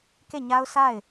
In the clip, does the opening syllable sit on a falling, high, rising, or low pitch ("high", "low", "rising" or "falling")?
falling